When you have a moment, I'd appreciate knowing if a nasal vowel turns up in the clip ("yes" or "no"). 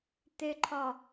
no